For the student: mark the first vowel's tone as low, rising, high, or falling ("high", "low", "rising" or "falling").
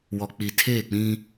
low